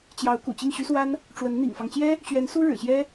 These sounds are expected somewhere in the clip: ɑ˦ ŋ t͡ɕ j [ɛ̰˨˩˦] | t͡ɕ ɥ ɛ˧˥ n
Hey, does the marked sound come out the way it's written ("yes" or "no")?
no